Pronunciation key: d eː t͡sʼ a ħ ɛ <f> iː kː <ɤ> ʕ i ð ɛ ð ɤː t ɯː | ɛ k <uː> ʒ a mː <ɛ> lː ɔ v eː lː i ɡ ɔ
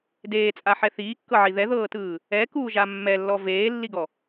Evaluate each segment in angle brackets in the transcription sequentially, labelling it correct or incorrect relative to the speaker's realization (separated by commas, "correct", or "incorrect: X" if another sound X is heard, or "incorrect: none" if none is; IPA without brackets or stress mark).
incorrect: θ, correct, correct, correct